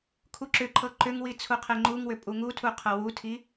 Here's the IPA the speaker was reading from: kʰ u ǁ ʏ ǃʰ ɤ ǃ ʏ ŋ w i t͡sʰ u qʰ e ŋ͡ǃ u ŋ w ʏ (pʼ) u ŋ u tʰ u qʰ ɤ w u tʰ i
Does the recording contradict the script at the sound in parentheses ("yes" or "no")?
no